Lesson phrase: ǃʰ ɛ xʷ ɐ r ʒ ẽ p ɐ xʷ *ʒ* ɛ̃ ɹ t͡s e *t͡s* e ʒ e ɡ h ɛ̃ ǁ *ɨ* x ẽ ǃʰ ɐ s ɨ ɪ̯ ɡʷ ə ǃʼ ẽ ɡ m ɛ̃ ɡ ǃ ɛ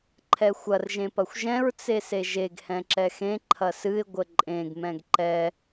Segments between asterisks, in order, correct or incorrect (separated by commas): correct, incorrect, incorrect